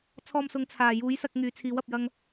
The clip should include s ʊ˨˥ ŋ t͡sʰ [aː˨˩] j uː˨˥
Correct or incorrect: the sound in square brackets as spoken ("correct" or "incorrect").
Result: correct